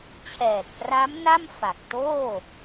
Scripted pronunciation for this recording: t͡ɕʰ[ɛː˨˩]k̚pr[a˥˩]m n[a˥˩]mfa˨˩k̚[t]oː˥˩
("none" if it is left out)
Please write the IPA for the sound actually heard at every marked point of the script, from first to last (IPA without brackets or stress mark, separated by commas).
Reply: ɛː˨˩, a˦˥, a˥˩, t